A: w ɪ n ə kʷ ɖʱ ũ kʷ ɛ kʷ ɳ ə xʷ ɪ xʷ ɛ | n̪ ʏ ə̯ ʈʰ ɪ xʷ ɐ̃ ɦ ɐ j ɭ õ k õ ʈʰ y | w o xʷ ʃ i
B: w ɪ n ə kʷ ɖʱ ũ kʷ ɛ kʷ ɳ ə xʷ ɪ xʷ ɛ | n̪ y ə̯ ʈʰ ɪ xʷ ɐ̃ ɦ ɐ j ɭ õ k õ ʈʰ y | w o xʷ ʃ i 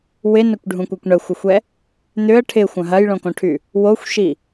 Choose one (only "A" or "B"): A